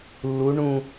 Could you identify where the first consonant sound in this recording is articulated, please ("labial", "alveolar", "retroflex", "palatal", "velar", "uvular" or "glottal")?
alveolar